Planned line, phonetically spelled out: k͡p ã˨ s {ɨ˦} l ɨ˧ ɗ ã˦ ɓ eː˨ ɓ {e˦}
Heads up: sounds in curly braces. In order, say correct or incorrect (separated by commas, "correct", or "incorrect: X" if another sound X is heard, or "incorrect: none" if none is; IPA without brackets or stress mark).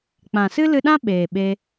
correct, incorrect: e˧